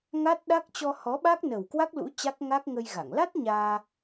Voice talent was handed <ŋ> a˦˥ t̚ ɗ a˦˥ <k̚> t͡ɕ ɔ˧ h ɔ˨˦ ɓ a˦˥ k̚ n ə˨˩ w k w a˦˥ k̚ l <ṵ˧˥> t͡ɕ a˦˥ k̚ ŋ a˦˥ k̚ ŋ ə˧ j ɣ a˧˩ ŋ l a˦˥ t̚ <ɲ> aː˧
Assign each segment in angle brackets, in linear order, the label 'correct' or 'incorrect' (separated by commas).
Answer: correct, correct, correct, correct